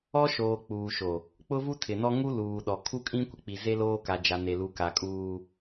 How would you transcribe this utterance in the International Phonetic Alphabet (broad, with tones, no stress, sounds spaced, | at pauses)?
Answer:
ɔ˦ ʃ oː˨ k͡p uː˨ ʃ o˨ | k͡p ʊ˦ v u˦ tʰ ɪ˨ n ɔ˦ ŋ u˦ l uː˨ ɗ ɔ˨ kʰ u˦ kʼ ĩ˦ kʷ ɪ˨ k͡p i˨ z e˦ l oː˦ k a˨ d͡ʒ a˨ n e˨ l u˨ k a˨ kʼ uː˦